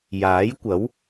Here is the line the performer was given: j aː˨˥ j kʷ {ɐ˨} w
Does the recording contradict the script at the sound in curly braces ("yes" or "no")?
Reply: yes